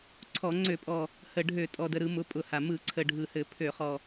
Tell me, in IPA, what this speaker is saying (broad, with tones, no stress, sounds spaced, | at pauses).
ǀʰ ɔ˧˩˧ ŋ͡ǀ ø˧˩˧ pʼ ɔ˨˩ | h ə˨˩ ɖʱ ø˧˩˧ tʼ ɔ˨˩ d ə˨˩ ɾ ɯ˧˩˧ m ʊ˩˥ pʼ ʊ˧˩˧ h a˨˩ m ɯ˧˩˧ ǀʰ ə˨˩ ɖʱ ɯ˨˩ h ɘ˧˩˧ pʰ ø˧˩˧ χ ɔ˨˩